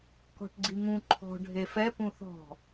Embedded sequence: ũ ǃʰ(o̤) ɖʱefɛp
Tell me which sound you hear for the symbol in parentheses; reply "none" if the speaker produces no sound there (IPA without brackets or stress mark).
ɔ̤